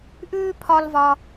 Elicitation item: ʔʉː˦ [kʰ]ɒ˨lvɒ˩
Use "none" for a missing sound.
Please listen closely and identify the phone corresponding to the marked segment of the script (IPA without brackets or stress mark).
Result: pʰ